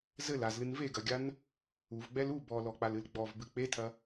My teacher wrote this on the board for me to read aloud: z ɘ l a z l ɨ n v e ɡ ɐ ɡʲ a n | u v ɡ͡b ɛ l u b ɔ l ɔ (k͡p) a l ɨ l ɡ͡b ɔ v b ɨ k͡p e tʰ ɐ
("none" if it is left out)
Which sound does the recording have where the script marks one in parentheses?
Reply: k͡p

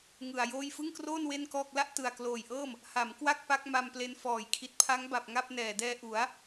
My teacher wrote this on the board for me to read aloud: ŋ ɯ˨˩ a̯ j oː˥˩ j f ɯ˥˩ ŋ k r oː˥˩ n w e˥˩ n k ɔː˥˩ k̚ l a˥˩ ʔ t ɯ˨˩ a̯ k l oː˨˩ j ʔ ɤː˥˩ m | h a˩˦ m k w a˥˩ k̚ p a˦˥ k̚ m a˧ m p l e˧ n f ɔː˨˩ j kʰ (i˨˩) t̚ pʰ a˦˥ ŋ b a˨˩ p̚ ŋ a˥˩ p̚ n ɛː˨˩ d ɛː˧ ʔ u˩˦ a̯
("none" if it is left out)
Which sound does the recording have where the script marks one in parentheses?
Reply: i˨˩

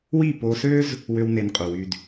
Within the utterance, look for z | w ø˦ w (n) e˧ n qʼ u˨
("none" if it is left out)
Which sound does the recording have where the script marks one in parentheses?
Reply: n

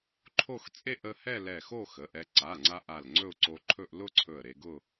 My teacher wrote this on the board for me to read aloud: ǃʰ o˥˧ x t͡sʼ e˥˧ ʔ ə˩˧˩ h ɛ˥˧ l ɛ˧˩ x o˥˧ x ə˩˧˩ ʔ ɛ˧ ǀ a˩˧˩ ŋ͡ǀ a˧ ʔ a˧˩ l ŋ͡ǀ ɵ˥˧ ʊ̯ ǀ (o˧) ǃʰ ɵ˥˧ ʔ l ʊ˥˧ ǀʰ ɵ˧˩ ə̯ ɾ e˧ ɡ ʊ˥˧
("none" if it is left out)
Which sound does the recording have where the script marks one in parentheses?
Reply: o˧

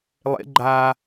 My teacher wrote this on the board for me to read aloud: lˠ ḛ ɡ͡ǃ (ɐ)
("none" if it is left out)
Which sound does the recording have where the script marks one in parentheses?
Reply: a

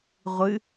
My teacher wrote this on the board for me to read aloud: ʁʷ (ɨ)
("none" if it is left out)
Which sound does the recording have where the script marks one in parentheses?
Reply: ɨ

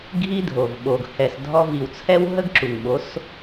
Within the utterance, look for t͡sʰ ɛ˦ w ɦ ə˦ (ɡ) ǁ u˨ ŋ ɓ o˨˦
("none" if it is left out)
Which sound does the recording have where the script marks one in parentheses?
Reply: ɡ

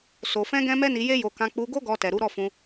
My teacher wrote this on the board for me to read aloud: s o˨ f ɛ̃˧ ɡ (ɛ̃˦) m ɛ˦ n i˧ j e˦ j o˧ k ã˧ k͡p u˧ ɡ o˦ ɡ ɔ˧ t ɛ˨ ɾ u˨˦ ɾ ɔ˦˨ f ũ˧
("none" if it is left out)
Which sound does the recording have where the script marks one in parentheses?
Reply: ɛ̃˦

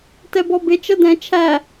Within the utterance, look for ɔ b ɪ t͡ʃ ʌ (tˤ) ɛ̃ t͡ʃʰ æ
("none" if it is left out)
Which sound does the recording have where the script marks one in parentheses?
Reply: d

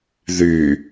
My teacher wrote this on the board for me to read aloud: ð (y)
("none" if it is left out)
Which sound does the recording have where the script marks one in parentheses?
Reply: y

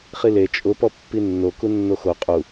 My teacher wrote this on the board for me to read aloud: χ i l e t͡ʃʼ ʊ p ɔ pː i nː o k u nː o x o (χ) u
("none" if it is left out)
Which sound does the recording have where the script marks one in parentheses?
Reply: qʼ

